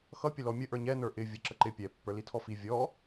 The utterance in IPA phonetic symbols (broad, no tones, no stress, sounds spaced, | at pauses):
x ʌ pʲ ə l ɔ mʲ ə ʔ ə˞ ɲ ɛ n ə˞ ʔ ɪ vʲ ə ǁ ə ǃ ɪ pʲ ɛ pː ə˞ l i tʰ ɔ f i vʲ ɔ